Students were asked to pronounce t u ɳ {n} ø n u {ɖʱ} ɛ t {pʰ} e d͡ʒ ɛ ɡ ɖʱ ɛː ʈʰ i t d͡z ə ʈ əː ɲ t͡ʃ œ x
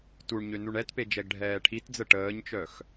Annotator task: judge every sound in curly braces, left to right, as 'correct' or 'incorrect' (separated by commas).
incorrect, incorrect, incorrect